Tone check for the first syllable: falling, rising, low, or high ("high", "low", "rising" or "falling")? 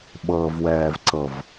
low